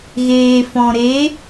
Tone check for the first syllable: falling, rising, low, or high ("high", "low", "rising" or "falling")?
low